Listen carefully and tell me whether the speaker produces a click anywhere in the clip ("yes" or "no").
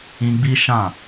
no